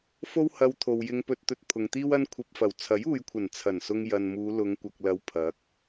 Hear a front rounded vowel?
no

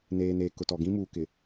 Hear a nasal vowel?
yes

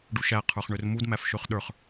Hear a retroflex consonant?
yes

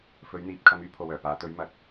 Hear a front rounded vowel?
yes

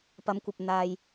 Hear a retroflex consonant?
no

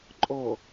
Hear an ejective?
yes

